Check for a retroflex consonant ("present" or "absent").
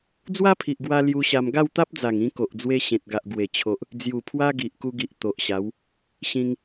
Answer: absent